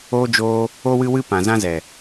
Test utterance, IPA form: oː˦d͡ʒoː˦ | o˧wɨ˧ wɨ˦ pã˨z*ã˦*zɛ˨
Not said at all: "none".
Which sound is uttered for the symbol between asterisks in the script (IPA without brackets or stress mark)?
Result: ã˦